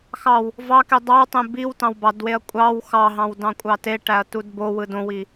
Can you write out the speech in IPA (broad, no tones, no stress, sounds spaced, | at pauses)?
x ɑ w | v ɑ k e dˤ ɑ w tˤ ẽ b i w t ɑ̃ w b ɑ d w e ɐ̯ kʷʼ ɑ w x ɑ ɦ ɑ̃ w d ɑ̃ kʷʼ ɑ t e ʈ æ ɐ̯ t u d b o w ɯ d õ w i